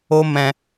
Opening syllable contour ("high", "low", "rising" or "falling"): high